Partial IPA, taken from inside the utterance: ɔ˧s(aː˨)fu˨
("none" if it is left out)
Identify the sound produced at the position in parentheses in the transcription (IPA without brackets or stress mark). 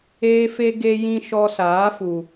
aː˨˦